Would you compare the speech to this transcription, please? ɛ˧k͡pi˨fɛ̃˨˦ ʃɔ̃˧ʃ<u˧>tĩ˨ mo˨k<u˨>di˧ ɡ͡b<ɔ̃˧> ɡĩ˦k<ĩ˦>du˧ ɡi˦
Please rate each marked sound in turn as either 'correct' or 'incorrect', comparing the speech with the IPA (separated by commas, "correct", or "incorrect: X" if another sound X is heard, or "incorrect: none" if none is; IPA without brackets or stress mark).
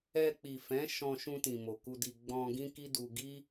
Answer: incorrect: ũ˧, incorrect: u˧, correct, incorrect: i˦